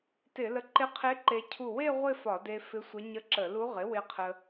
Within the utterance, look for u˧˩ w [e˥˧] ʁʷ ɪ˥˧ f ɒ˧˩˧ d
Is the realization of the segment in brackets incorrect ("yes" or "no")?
no